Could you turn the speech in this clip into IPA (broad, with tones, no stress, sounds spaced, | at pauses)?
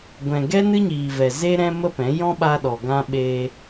ɡʷ ɛ̃˨ ɡ ɛ˦ n ɨ˦ ɲ iː˨ v ɛ˨ z e˦ ɾ ɛ̃˦ m ə˦ p ɛ̃˨˦ j ɔ̃˦ ɓ a˧ ɗ ɔ˨ ɡ ã˧ ɓ e˧